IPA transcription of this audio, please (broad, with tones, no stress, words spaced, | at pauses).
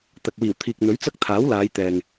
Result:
t̪ɐ˨k̚wiː˨˩wt̪ʰiː˨k̚ n̪ɵ˨˥ɥt͡sɐ˥k̚t̪ʰaː˨˥wlaː˨˧j t̪ɛː˨ŋ